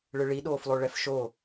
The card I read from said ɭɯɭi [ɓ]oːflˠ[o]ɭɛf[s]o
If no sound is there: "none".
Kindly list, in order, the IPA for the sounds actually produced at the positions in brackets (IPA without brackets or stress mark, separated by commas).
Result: ɗ, o, ʃ